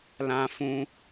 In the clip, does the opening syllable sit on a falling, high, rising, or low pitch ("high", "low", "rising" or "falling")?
high